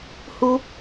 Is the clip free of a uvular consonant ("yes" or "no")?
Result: yes